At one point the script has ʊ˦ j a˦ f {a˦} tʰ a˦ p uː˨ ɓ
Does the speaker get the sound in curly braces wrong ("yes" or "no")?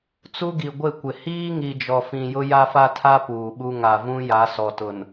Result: no